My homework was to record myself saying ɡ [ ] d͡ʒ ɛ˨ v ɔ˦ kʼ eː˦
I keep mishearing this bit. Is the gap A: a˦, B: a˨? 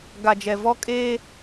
B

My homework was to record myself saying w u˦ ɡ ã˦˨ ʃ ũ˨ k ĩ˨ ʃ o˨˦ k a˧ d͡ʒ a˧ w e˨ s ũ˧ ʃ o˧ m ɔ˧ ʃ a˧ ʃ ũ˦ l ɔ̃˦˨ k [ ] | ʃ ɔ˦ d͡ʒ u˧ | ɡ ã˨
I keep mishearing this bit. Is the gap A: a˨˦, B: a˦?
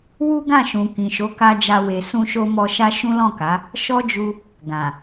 A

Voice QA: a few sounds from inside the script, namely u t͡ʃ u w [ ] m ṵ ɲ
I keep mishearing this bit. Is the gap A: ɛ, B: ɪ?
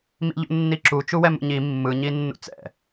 A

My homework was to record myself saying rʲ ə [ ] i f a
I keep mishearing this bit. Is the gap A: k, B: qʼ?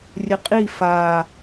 B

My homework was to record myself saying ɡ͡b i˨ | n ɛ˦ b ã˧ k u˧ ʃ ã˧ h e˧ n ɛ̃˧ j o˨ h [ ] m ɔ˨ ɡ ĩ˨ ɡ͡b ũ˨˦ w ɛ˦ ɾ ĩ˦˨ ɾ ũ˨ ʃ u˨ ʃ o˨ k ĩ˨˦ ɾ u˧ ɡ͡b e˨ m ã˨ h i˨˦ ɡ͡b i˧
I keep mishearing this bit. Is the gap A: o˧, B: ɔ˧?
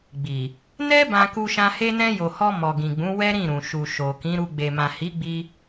B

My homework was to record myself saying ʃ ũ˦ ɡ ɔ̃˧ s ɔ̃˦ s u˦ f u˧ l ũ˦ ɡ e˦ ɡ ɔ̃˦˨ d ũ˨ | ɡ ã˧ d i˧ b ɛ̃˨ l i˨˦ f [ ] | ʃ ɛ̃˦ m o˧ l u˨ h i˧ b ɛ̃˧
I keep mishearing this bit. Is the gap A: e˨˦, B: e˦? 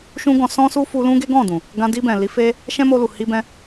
B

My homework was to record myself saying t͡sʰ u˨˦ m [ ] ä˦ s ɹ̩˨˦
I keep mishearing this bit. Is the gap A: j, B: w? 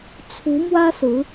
B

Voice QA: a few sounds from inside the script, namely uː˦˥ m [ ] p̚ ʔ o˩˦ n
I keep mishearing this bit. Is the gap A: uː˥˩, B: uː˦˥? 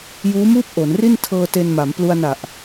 A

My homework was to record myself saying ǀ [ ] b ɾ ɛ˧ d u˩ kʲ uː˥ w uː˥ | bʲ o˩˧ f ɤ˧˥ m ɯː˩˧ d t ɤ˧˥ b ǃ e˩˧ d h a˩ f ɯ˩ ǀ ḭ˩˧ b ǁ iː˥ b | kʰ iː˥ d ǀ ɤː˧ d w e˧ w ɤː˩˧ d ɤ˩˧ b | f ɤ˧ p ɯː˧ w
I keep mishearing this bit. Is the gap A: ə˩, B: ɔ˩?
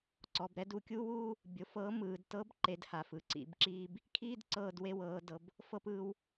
B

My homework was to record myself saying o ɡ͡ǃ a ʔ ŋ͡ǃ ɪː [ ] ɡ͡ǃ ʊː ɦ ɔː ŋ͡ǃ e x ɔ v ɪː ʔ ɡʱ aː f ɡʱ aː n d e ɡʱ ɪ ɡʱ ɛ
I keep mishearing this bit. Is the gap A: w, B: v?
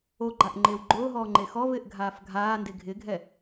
A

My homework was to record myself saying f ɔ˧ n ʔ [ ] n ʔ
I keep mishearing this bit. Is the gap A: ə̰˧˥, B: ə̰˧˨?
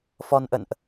B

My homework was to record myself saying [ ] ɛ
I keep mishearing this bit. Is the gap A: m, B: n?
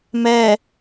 A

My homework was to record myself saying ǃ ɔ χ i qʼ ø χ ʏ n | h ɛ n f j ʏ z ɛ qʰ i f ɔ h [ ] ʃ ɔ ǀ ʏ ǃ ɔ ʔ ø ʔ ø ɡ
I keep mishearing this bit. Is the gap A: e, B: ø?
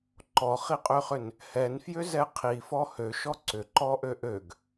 B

